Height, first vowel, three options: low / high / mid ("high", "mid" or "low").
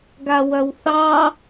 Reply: low